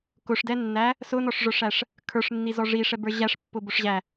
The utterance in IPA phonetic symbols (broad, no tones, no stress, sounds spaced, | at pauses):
k ʊ ʂ d ɛ nː æ | s ʊ n ɔ ʂ ʐ ə˞ ʂ æ ʂ | kʰ ə˞ ʂ nː i z ɔ ʐ i ʂ ɛ b ə˞ ʑ æ ʂ pː ʊ b ʊ ʂ ʑ æ